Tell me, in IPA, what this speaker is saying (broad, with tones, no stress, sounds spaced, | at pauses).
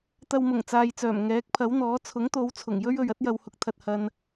t̪ ɐ˧ w m ʊ˨˩ ŋ t͡s aː˨ j t͡s œː˨˩ m ŋ ɛː˨˥ k̚ pʰ ɐ˨˥ w n̪ ɔː˨˥ t͡sʰ ʊ˨˥ ŋ t̪ o˨˧ w t͡sʰ ʊ˨˩ ŋ j ɵ˥ ɥ ɵ˨ ɥ ɐ˥ t̚ j ɐ˧ w h ʊ˨ k̚ t̪ʰ ɐ˨ t̚ h ɐ˨ n